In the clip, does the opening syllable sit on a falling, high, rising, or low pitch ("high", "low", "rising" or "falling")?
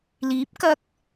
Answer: rising